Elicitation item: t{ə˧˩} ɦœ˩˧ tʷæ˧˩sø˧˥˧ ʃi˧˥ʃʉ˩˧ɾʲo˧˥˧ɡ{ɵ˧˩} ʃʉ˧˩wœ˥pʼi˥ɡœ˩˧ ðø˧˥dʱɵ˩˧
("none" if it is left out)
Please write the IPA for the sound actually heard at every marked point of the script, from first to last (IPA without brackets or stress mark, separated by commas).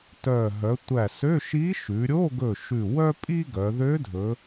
œ˧˩, ɵ˧˩